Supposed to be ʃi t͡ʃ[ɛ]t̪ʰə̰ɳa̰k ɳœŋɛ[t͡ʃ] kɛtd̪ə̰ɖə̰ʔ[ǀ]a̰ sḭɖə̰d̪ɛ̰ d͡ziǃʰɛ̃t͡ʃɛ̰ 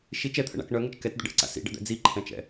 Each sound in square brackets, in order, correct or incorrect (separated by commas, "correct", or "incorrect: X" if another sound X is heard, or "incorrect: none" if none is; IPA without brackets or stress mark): correct, correct, correct